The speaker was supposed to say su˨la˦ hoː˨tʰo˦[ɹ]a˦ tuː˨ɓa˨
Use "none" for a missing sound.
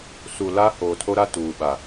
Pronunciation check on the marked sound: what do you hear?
ɾ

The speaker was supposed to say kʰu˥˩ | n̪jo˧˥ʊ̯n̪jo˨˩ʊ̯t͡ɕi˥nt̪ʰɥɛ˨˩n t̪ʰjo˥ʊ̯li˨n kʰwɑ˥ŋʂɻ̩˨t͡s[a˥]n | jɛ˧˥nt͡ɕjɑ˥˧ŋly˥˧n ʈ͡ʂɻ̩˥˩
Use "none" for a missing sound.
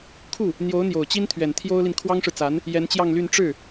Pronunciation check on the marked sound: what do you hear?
a˧˥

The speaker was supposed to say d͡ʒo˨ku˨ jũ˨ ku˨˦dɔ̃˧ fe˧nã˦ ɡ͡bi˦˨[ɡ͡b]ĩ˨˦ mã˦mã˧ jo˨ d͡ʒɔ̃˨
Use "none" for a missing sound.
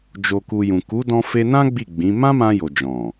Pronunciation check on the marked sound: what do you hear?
ɡ͡b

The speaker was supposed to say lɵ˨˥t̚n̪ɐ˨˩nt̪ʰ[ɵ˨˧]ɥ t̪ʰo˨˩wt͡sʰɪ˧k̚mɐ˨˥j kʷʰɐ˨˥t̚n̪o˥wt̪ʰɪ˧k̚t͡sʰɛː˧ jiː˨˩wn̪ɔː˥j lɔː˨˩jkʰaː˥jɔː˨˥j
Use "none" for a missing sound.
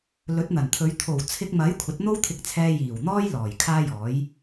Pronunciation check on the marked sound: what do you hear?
ɵ˨˧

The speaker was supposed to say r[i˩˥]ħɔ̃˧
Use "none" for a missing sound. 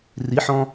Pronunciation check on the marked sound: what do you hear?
i˩˥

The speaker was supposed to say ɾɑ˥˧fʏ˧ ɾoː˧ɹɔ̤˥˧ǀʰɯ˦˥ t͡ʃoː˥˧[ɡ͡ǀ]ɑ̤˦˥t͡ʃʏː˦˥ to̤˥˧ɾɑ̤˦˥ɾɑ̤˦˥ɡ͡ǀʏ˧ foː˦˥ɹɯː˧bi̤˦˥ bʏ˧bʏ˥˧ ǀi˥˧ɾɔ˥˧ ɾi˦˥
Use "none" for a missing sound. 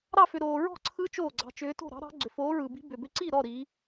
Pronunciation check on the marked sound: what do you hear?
ɡ͡ǀ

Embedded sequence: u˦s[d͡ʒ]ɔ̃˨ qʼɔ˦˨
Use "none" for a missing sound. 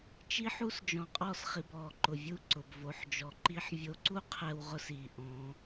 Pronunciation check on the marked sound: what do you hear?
d͡ʒ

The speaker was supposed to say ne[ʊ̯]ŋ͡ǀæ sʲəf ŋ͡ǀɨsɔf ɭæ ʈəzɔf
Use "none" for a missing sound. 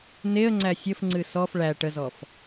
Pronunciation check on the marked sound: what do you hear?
ə̯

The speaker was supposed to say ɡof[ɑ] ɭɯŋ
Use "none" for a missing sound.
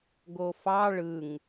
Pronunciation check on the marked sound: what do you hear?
ɑ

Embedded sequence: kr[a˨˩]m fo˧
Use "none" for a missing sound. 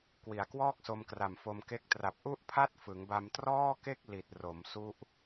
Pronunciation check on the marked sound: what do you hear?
a˨˩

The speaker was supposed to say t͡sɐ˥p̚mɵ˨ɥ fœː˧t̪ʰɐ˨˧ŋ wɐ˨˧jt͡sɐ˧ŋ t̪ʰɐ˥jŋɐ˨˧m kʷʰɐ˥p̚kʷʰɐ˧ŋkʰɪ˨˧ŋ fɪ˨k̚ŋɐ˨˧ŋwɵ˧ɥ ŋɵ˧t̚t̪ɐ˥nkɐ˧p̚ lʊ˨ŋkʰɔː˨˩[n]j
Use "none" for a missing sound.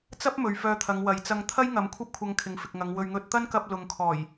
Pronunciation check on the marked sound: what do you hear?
none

